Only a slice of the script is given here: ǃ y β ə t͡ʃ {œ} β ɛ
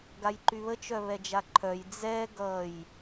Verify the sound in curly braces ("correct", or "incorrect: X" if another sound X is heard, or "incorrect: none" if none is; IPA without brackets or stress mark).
correct